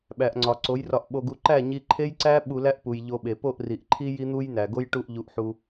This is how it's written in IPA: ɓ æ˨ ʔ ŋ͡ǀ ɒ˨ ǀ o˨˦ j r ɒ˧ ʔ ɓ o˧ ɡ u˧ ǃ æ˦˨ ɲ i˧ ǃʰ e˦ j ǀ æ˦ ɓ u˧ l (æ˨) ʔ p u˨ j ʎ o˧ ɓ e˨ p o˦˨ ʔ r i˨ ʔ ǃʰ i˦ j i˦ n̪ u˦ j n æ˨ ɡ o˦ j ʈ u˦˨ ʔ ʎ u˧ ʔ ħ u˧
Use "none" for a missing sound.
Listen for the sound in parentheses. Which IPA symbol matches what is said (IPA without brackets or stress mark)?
æ˦